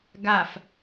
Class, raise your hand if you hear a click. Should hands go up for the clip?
no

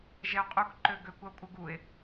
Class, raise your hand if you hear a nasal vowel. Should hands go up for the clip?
no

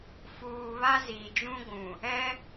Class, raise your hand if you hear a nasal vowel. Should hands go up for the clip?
yes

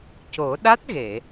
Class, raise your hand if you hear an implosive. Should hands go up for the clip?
yes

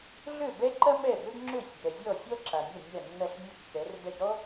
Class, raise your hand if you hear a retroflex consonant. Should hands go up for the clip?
no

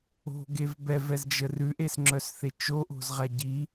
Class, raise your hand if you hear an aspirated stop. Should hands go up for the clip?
no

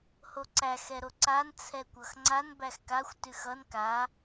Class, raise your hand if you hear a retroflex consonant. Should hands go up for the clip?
no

